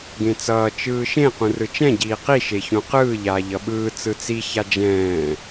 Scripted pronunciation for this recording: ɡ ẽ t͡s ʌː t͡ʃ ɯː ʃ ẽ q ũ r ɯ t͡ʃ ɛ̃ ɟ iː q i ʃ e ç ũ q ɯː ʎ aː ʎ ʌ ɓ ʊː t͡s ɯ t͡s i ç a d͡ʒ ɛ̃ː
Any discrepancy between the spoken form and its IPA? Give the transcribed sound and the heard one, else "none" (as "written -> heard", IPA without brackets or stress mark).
ʊː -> ɯː